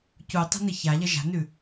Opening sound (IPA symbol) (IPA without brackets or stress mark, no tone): c